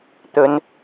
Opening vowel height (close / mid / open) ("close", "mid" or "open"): mid